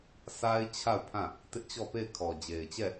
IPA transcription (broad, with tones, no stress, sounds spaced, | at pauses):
sʰ a˦ ɪ̯ t͡ɕʰ a˦˨ ʊ̯ pʰ ã˦˨ | t ɪ˦ ʔ t͡ɕ ɔ˦˨ p e˦˨ ɪ̯ kʰ ɔ˨ d͡ʑ e˨ ɪ̯ t͡ɕ ɛ˦˨